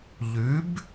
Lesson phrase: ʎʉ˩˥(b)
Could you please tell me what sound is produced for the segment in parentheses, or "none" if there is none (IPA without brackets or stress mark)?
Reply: b